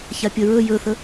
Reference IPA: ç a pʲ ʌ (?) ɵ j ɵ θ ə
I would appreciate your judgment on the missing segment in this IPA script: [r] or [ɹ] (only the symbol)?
ɹ